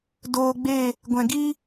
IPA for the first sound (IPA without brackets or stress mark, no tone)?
d